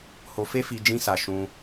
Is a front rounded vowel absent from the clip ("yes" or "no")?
yes